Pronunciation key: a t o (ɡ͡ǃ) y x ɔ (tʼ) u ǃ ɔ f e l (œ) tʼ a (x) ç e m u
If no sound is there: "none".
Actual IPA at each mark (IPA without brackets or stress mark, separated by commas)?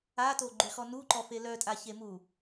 ɡ͡ǃ, n, œ, none